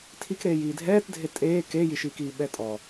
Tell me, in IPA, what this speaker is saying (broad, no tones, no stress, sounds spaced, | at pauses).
tʰ i k ɾ eː j iː dʱ ɛː t dʱ e tʼ eː k e j i ʃ iː k iː ɓ ɛ tʼ ɔ